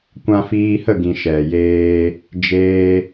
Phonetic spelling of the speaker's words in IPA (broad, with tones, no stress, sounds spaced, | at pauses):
kʷ ã˧ f iː˧ h ə˦˨ ɡ ĩ˨ ʃ ɛ˨ j eː˧ | d͡ʒ eː˧